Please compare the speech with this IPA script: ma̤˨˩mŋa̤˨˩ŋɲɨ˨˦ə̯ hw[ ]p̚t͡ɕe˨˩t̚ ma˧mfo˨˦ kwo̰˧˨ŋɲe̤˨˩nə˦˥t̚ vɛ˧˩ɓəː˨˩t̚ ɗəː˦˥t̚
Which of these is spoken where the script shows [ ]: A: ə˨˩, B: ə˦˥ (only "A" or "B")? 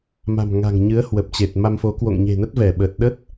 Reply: A